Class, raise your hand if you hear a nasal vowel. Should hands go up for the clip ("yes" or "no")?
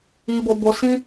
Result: yes